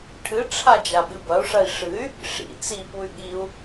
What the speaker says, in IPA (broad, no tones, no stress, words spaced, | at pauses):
ʈʰɨʈ͡ʂʰa d͡ʒaɓɨbɐu̯ʂɐi̯ ʂɨy̯ | ʂḭ t͡sipuy̯ ɠiu̯